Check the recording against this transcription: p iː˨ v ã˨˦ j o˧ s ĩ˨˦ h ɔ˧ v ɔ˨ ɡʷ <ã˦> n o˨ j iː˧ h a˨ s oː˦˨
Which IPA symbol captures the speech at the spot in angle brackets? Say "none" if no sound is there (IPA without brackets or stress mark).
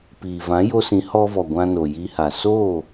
ã˧